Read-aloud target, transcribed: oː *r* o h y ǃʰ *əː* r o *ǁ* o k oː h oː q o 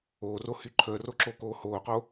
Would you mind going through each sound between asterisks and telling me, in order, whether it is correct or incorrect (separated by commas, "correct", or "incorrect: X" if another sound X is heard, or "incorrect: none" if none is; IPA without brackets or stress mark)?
correct, correct, correct